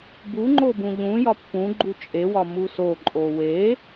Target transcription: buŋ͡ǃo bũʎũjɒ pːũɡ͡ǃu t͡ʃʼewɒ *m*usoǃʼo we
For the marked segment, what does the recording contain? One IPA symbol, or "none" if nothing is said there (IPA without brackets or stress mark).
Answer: m